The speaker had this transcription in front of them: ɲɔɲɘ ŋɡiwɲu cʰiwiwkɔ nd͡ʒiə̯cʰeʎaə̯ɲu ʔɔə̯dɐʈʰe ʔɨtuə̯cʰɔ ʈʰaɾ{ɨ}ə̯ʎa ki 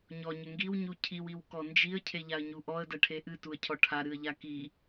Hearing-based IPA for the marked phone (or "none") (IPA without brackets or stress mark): ɨ